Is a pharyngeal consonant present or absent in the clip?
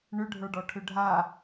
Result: absent